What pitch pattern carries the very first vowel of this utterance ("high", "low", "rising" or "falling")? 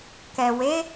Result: low